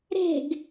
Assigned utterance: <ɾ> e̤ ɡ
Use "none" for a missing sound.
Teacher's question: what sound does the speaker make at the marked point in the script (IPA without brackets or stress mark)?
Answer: ɾ